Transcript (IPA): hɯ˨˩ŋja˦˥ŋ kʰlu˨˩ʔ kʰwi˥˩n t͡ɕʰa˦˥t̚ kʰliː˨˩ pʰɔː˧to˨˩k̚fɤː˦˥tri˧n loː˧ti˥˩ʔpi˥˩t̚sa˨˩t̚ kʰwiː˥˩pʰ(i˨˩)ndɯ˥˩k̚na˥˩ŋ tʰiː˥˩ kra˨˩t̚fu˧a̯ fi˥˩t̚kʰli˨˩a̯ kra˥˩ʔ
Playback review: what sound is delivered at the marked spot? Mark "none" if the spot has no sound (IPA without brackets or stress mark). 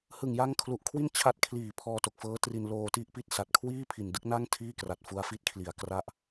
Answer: i˨˩